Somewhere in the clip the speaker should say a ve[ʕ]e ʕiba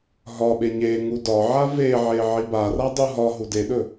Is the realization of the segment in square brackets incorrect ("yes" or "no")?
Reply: no